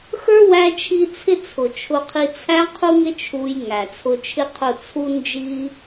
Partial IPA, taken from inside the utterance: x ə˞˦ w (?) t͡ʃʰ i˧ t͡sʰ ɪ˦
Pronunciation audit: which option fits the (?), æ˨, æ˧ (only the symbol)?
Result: æ˧